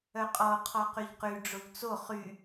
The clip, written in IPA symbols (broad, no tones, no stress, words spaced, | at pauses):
œqʼɔo̯ qʰɔqyʎqy ɖ͡ʐoʎt͡so χy